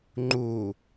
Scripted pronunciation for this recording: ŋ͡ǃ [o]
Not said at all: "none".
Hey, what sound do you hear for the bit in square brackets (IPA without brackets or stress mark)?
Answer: u